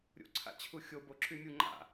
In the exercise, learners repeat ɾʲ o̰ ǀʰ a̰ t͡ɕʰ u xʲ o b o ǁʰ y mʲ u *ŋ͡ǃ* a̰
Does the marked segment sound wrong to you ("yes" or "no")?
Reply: no